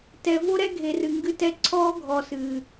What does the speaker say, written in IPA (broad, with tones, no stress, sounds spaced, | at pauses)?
t ɛ˨ v o˦ ɾ ɛ˦ ɡʱ e˨ r ɨ˨ ŋ ɡ ɨ˦ t ɛ˦ ǀʰ ɔː˦ ɡʱ ɔ˨ s ɨː˨